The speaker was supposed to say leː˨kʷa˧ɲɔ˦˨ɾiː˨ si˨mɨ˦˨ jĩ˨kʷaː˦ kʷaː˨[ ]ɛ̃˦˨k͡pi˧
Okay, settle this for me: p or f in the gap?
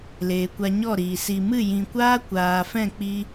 f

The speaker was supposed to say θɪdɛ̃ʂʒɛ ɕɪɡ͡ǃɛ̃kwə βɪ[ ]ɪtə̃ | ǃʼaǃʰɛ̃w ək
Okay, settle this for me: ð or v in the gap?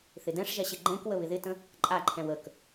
ð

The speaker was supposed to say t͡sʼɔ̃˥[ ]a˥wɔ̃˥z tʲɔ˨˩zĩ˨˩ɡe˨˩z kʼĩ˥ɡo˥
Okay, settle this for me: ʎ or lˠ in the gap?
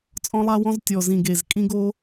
lˠ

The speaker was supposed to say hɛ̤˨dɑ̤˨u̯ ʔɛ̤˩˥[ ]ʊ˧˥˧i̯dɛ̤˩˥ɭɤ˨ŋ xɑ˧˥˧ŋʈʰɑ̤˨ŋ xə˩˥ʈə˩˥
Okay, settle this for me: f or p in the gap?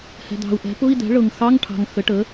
p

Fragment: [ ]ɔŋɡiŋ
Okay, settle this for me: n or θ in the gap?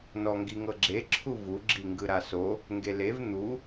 n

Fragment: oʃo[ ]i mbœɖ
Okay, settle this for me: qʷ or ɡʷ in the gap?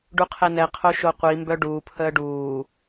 qʷ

